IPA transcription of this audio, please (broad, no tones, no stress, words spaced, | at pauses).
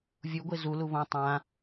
vʲuɡʷe zulu βõ tˤã